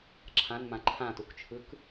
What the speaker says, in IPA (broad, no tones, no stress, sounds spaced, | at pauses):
ǁʰ ã n m ã ǃʰ ã t u k t͡ʃʰ ɯ k